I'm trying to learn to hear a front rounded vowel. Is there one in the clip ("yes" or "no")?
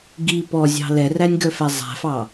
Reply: yes